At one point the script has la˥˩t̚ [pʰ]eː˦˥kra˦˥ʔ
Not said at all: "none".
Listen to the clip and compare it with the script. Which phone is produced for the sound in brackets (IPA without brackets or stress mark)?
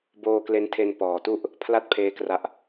pʰ